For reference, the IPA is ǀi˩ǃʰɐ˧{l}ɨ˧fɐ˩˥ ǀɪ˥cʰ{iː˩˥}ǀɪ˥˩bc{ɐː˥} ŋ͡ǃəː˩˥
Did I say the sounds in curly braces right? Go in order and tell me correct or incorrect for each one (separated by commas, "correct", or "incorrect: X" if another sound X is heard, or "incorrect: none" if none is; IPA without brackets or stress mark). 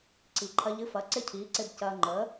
incorrect: ʎ, correct, incorrect: ɐː˧